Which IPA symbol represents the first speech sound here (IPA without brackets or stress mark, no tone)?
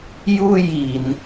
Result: j